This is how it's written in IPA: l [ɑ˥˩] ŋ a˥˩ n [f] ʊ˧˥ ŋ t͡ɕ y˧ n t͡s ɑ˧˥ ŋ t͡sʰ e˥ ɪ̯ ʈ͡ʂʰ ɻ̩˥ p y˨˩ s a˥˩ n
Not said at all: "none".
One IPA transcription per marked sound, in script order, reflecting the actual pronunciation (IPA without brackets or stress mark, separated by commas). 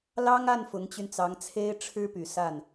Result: ɑ˥, f